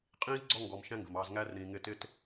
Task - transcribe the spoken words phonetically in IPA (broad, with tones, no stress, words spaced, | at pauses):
qʼĩː˥zɡ͡ǀɔ˦ŋɡɔ˨m ʃæ̃˥ŋɡə̤˩mɑː˨z ŋæ˥r ɾĩː˨ŋɪː˦ tɪː˥t